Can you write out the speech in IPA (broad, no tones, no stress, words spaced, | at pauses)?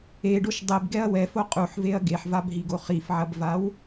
eɖoʃ dˤebɡɛɐ̯ wɛfo qʼuħveɐ̯ ɡeħvabɦiɡo χifʕɐbvaw